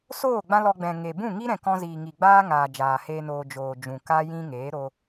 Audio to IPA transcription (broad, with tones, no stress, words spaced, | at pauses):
soː˦˨ ɡ͡bã˦lɔ˧ɡ͡bɛ̃˨ŋe˨ bũ˦˨ŋi˦ɾɛ̃˨kɔ̃˧ ziː˨ŋi˨ɡ͡baː˦ŋaː˨ d͡ʒaː˨heː˦noː˧ d͡ʒoː˨ d͡ʒũ˨ka˦ jĩ˦ŋeː˨˦ ɾo˧